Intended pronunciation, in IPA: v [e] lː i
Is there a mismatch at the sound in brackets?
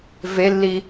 no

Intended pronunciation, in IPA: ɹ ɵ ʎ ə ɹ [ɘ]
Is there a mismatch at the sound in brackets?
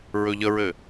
no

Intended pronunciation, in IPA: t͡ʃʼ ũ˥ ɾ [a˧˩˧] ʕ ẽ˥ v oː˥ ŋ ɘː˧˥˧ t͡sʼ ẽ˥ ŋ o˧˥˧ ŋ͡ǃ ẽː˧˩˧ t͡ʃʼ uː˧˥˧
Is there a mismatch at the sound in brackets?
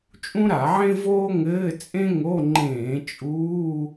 no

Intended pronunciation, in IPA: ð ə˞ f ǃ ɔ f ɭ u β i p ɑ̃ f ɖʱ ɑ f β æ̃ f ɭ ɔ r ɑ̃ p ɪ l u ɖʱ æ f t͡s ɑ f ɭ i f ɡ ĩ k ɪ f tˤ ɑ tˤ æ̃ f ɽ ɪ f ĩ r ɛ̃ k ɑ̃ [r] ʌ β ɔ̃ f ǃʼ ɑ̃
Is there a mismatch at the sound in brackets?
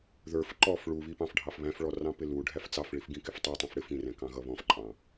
yes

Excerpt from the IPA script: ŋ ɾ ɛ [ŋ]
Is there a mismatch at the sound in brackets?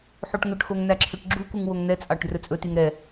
yes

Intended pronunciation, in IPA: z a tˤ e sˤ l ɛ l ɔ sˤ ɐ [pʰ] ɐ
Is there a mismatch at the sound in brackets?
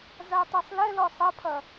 no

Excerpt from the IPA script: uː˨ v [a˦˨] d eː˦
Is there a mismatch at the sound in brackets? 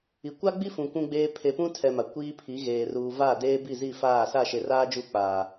no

